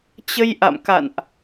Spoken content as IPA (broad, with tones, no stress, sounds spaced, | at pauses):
t͡ɕ ə˧ j ʔ a̰˧˨ m k a̰˧˨ n ʔ